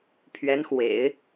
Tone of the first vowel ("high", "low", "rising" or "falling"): rising